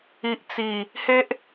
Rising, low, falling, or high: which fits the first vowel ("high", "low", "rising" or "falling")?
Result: low